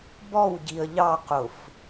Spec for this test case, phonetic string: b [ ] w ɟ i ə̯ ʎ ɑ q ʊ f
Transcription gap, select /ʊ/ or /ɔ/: ɔ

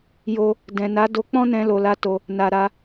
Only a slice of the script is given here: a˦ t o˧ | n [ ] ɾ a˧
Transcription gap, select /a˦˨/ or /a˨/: a˨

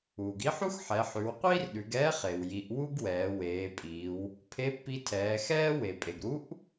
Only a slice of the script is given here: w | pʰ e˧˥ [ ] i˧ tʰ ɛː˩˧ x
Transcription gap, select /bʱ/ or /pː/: pː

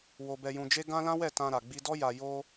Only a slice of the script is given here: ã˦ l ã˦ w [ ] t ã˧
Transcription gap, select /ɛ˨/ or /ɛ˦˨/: ɛ˦˨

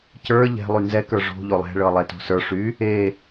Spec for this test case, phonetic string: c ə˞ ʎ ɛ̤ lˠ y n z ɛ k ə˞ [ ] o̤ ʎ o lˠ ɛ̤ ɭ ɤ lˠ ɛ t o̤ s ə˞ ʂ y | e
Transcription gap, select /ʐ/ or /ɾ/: ʐ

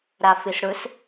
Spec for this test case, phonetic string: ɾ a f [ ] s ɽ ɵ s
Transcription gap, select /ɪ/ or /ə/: ɪ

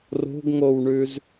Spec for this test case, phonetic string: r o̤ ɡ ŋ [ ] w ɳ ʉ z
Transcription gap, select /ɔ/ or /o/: o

